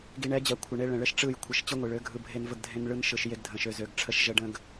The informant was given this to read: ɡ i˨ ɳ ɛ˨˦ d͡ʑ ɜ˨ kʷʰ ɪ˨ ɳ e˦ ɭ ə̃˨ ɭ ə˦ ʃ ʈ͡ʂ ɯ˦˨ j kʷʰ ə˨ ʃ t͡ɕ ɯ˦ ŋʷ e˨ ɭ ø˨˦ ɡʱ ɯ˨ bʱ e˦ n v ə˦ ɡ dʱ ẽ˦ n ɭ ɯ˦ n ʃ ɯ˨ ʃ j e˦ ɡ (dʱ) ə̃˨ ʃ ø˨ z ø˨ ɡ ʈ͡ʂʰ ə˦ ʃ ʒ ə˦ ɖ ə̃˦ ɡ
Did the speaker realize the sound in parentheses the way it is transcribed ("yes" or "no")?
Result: yes